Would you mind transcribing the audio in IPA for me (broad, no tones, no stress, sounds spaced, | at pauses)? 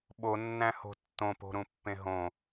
ɓ o nː æ̃ h o̤ tː õ p o̤ ɾ ũ pː ẽ ɦ õ